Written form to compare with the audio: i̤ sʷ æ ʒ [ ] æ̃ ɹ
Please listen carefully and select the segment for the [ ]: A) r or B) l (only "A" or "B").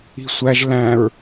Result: B